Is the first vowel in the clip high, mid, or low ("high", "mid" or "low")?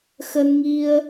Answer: mid